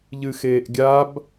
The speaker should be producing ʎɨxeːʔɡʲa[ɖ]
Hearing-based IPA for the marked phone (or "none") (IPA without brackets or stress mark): b